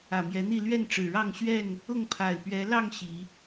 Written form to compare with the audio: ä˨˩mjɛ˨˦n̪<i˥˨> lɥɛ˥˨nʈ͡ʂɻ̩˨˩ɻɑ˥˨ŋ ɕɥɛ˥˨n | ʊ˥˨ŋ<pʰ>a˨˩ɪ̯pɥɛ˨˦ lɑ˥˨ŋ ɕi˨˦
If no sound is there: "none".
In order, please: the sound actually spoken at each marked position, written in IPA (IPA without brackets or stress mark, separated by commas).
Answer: i˥˨, pʰ